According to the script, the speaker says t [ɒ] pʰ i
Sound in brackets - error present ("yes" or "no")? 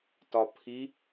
no